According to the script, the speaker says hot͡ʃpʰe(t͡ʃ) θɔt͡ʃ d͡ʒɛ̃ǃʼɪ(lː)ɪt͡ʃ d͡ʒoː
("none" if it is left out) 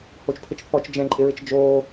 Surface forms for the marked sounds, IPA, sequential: t͡ʃ, ɹ

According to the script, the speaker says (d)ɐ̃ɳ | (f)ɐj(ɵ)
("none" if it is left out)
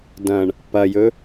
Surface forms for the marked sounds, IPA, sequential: d, p, ɵ

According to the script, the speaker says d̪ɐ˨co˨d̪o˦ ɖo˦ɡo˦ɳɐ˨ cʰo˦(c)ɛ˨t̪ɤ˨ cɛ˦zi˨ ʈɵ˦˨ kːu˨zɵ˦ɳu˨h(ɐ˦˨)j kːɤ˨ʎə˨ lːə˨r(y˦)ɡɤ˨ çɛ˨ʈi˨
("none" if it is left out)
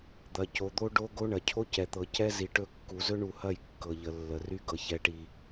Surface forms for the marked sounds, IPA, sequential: c, ɐ˦˨, y˦

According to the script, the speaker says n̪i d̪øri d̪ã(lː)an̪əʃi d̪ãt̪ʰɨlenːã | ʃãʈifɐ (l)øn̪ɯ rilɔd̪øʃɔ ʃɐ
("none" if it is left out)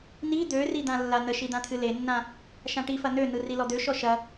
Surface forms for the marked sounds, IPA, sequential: lː, n̪

